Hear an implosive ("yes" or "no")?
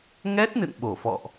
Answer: yes